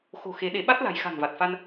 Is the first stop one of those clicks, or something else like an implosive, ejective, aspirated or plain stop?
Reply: implosive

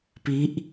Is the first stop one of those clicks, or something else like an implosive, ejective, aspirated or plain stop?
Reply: plain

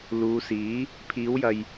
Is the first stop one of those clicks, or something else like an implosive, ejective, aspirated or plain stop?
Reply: aspirated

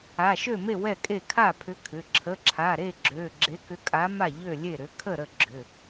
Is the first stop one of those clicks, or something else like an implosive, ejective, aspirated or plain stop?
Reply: ejective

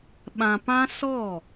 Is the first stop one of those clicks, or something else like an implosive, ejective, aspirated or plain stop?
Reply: implosive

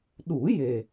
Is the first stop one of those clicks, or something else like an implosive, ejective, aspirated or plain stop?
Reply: implosive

